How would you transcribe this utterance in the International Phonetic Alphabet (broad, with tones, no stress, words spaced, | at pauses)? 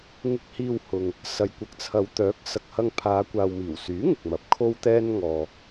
ŋɪ˧k̚hiː˧whʊ˨ŋ | sɐ˨jkʷɐ˨k̚t͡sʰɐ˨˧wt̪œː˨˥k̚ sɐ˨k̚hɐ˧ŋpʰaː˨˧ kʷaː˨wmiː˨˩wsyː˨˥ ŋɪ˨k̚mɐ˨p̚ kʰo˥wt̪ɛː˥nŋɔː˧